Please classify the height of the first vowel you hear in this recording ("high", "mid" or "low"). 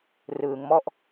high